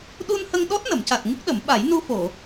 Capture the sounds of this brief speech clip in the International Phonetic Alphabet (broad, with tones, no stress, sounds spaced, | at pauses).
ɗ u˧ n h ə˧ ŋ ɗ ɔ˦˥ t̚ n ə˨˩˨ m c a˨˩ t̚ ŋ ɨ˦˥ k̚ ɗ ə˨˩˦ m ɓ a˨˩˦ j n u˧ f o˨˩˨